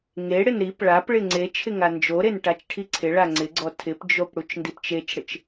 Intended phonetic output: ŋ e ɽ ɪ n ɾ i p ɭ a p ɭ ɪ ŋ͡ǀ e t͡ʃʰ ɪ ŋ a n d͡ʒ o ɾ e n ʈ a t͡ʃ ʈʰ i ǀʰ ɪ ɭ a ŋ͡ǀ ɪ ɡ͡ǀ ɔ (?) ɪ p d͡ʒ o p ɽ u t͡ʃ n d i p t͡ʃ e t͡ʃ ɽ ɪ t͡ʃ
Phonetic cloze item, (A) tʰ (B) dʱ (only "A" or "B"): A